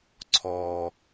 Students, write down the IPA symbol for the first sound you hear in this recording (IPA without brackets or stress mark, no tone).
ǀʰ